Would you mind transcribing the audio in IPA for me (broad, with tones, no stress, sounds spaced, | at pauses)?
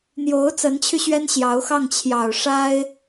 n̪ j o˧˥ ʊ̯ t͡s ə˧˥ n t͡ɕʰ y˧ ɕ ɥ ɛ˥ n ɕ j ɑ˧˥ ʊ̯ x ɑ˥˩ ŋ t͡ɕʰ j ɑ˨˩ ʊ̯ ʂ a˥ ɪ̯